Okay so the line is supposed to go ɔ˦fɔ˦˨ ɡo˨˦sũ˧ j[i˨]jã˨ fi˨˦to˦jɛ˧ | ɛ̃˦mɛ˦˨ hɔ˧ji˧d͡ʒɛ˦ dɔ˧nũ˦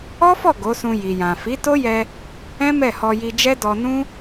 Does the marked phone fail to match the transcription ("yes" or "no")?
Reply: no